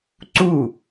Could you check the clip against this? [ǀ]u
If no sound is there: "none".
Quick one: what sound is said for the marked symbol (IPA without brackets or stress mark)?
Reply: ǀ